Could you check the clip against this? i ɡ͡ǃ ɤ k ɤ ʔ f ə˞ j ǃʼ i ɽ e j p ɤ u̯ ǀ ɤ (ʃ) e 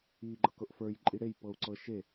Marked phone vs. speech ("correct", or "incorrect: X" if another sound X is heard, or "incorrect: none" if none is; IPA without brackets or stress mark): correct